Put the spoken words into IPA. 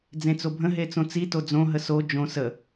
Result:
d͡zẽt͡sobʱə̃ ɦet͡sõt͡si tod͡zõ ɦəso d͡ʒõ sə

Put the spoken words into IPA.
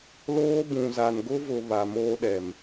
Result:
loː˦ bũ˨za˨n ɡʊ˦vʊ˨ βa˨moː˦ɗɛ˨m

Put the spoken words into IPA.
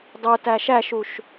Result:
dˤo tæʃæʃuʃ

